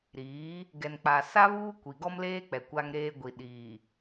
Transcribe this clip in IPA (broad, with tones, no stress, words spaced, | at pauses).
ɾiː˨˦ | ɡɛ˨nk͡pa˨sa˦ βuː˦kʷi˨ɡɔ˦mleː˦ k͡pɛ˨kʷa˦ŋɾeː˦ ɡʷi˨ɗiː˨